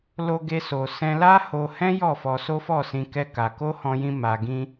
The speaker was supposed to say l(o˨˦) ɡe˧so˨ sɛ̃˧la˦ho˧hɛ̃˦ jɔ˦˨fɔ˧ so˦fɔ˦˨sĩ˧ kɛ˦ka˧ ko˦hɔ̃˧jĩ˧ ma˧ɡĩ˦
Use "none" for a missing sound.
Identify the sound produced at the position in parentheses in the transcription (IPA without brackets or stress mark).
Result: o˧